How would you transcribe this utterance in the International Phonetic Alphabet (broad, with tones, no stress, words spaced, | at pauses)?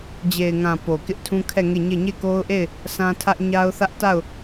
d͡ʑe˨ɪ̯ŋã˨ po˨kɪ˦ʔtʰũ˦kʰɛ˦˨ ŋe˦˨ɲe˦˨ ɲe˦˨ ko˦ʊ̯ʔe˦˨ɪ̯ | sã˦tʰä˦ʔ ɲa˦ʊ̯θä˦ʔ ta˦˨ʊ̯